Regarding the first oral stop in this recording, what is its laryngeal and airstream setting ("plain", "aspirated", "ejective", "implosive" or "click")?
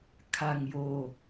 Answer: aspirated